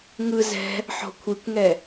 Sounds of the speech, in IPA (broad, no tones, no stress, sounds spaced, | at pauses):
ŋ ɯ z ɛ̤ | ħ ɔ̤ kʷʰ i kʷ ŋ ɛ